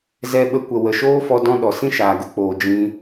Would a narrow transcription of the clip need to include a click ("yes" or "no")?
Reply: no